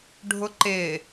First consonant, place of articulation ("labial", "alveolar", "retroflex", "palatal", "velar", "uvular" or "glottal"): retroflex